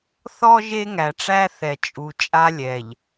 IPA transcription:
θ ɔ˦ ʒ e˦ ŋ æ˨ ʈ͡ʂ æ˦ θ ɛ˨ t͡ʃʼ u˨ t͡ʃʼ a˦ lʲ ɛ˨ ʎ

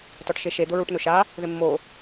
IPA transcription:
t ɔ ʈ ʃ e ʃ e d̪ ʊ ɹ u ʈ n ʊ ʃ a | ð ɪ mː o

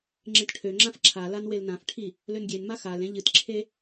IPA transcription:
ŋ͡ǁ ẽ t ʈʰ ø ŋ͡ǁ ã f ǁʰ a l a n w e l n ã f ʈʰ i | l ø n ɡʲ e n m a x a l ẽ ʎ ɨ t ǁʰ e

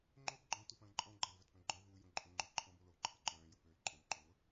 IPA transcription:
ŋ͡ǃ o b ɡ͡ǃ ɔ̃ t u p ɐ̃ː ǃʼ ɔ̃ ɡ͡ǃ ɐ l v œ t p œ̃ ɡ͡ǃ œ v u j õ ǃʼ õ ŋ͡ǃ ʊ ǃʰ ɔ̃ b o l o ǃʰ ɐ ǃ œ̃ː j ʊ p øː l ǃʼ õ b ǃ o ŋʷ ə

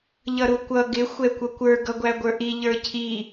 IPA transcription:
ʎ ʌ ɾ u kʷ ʌ ɡ ɪ xʷ ɛ kʷ ʌ kʷ ə˞ ɡ ʌ ɡʷ æ ɡʷ ə˞ ʔ i ʎ ə˞ cʰ i

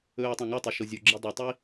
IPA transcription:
ɵː o̯ tˤ ã ŋ o tˤ i ʃ o zʲ o ɡ͡ǁ i dˤ ɨ tˤ i

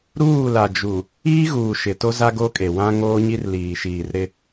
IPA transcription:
ɾ uː˦˨ l a˨ d͡ʒ u˨ | iː˦ ɣ uː˨ ʃ ɪ˨ t o˦ z a˦ ɡ o˦ kʼ e˨ w ã˦ ŋ oː˦ ɲ i˦ r l iː˨ ʃ iː˨ r ɾ ɪ˦

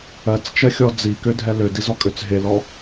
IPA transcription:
ɜ t͡s t͡ʃ ɜ xʲ ɔ d͡z i k ø dʱ ɛ l ø d i z ɔ kʼ ø t͡s ɦ e l ɔ

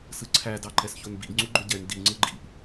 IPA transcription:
s ɯ ǀʰ æ d ɑ ǃ ɛ s ç o n b ḭ ɡ ŋ͡ǀ u ɡ͡ǃ ɵ ɟ ɛ n d i ŋ͡ǀ ɯ ɡ͡ǃ ḭ ʔ

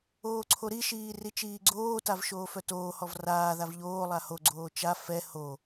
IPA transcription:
oː ǀʰ o ɾ i ʃ iː r i t͡ʃ iː ɡ͡ǀ oː t a v ʃ oː f œ t oː h ɔ v r aː ð a v ʎ oː lˠ a h o ɡ͡ǀ oː t͡ʃ a f ɛ h o

